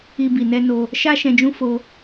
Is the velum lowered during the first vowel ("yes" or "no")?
no